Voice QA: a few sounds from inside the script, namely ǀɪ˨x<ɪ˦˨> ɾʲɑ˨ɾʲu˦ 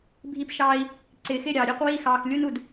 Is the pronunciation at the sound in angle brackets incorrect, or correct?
correct